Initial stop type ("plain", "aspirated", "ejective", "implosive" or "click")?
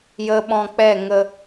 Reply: implosive